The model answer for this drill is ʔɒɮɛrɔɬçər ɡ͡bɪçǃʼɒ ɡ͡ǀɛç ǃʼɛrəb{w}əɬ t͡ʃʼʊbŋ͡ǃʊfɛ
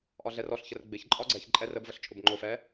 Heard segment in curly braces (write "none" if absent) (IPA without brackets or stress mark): v